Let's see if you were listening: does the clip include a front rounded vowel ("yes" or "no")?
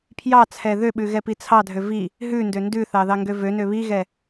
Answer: yes